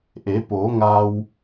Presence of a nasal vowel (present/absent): absent